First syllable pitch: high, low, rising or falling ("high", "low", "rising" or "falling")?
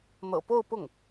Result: low